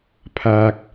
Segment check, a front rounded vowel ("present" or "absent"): absent